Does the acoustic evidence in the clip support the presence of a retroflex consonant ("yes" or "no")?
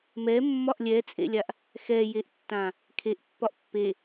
no